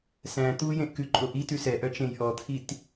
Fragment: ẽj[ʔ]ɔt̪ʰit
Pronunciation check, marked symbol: correct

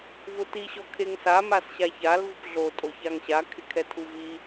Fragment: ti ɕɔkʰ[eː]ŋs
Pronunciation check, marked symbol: incorrect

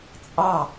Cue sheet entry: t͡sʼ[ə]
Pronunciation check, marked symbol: incorrect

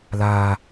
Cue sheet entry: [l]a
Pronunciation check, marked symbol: correct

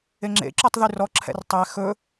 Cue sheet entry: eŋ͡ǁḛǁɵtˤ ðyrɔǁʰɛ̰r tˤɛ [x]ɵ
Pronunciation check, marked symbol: correct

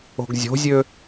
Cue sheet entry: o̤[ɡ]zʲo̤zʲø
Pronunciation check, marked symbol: correct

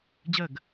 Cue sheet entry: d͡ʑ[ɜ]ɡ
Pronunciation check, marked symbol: correct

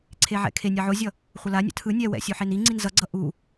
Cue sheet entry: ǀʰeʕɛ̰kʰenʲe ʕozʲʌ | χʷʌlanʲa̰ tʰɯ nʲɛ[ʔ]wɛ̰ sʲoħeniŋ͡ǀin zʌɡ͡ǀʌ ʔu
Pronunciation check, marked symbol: incorrect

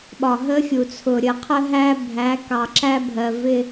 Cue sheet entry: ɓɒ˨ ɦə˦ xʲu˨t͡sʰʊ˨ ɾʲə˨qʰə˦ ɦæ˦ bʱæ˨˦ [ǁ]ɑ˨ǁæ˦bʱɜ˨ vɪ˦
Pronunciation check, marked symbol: incorrect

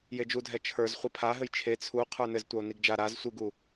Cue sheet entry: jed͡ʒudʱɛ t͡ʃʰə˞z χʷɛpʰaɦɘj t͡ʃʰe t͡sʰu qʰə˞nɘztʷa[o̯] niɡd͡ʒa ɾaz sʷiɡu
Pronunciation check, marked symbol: correct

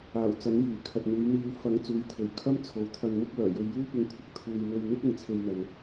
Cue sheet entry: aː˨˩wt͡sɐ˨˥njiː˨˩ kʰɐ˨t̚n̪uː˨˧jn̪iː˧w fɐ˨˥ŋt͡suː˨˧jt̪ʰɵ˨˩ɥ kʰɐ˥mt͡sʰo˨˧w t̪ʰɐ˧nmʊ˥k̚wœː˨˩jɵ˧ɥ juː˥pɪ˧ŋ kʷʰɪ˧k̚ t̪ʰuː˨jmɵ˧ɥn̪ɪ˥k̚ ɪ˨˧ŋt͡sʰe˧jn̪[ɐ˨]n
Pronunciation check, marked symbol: correct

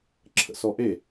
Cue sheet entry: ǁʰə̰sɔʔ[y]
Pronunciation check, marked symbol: incorrect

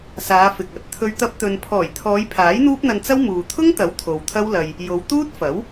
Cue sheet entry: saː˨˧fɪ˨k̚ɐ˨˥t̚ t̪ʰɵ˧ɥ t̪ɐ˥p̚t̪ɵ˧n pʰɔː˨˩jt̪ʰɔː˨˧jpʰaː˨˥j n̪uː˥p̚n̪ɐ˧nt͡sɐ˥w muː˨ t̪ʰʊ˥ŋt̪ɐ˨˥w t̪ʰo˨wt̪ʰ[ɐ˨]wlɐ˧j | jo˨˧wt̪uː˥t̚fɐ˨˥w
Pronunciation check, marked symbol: incorrect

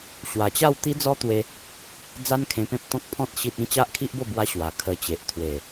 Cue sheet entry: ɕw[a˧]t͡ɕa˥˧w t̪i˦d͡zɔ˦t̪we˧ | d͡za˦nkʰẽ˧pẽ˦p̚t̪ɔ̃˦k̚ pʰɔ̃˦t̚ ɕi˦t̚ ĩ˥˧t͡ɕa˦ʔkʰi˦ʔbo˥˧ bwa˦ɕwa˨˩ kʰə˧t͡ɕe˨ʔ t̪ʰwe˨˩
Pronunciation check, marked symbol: incorrect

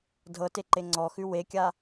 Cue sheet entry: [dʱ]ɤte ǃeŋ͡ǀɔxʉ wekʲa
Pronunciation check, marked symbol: correct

